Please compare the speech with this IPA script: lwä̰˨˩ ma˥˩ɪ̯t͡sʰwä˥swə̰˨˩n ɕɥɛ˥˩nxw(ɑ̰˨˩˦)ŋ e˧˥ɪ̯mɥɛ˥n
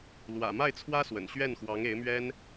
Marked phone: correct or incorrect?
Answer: incorrect